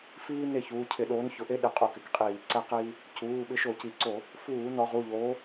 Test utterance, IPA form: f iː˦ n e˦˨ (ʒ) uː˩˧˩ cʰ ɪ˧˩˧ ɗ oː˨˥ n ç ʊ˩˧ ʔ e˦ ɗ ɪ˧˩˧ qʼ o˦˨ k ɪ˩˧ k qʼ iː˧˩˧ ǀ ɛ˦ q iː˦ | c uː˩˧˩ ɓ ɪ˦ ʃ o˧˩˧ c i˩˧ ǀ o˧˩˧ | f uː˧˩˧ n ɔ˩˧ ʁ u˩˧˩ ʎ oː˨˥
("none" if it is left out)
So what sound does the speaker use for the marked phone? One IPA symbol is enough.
ç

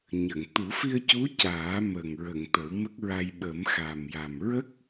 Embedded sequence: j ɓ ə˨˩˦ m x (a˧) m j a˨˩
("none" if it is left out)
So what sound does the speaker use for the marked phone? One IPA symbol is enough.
a˨˩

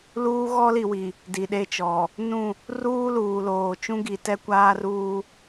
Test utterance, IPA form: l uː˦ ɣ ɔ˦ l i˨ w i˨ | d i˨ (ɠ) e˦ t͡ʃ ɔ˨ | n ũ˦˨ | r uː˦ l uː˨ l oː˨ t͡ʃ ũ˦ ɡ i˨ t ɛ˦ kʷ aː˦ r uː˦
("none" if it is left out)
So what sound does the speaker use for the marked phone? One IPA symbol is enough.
ɗ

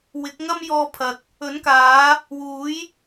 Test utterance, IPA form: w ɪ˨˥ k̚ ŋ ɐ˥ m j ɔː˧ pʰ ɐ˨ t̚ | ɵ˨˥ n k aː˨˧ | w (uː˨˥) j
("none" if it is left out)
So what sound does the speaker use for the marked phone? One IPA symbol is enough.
uː˨˥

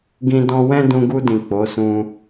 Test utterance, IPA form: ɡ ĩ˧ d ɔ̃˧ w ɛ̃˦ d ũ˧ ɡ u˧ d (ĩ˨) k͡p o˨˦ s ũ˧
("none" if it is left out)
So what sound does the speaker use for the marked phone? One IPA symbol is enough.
ĩ˨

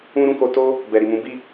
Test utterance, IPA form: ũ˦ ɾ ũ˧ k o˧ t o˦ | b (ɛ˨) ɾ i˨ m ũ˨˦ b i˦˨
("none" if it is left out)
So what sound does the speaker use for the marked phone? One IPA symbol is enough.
ɛ˨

